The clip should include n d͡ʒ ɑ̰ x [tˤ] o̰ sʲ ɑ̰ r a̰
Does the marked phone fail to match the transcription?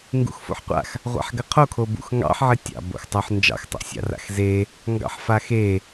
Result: no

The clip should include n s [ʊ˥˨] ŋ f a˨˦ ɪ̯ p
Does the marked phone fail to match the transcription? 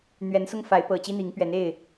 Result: yes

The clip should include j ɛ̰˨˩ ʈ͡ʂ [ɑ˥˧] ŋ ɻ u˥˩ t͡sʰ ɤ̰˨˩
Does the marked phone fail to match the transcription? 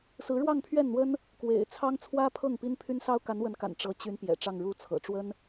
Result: no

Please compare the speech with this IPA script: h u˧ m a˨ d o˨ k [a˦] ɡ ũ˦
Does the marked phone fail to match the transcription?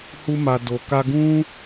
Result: yes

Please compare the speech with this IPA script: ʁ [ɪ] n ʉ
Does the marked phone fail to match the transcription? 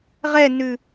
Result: yes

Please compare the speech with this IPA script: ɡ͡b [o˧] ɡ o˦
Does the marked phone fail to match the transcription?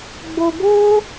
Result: no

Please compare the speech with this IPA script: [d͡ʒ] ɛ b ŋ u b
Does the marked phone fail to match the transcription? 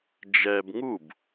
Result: no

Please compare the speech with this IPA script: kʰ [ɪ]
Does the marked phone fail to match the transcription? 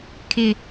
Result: no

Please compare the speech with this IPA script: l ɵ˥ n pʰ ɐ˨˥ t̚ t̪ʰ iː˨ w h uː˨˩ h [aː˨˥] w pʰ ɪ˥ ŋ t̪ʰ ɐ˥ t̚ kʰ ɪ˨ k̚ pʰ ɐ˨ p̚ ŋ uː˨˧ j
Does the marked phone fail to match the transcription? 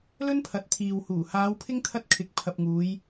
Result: yes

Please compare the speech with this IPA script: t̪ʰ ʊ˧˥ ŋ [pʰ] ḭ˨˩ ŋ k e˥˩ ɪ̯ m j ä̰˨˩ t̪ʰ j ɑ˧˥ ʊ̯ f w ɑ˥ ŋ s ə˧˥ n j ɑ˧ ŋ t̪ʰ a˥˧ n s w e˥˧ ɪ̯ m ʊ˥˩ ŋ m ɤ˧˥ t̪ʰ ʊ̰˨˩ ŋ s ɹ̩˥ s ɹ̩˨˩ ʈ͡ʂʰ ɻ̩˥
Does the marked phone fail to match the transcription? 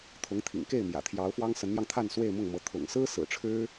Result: yes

